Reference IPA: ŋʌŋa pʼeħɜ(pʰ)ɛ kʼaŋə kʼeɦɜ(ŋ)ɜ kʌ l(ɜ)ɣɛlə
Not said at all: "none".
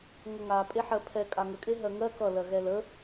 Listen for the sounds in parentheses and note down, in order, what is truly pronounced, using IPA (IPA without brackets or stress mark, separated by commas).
pʰ, ŋ, ɜ